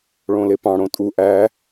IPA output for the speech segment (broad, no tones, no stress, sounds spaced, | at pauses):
ɭ õ l e p ɑ̃ ɽ õ tʼ u ʔ æ